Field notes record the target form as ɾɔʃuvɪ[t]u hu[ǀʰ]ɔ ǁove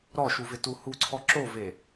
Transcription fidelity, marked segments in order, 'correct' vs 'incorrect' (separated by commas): correct, correct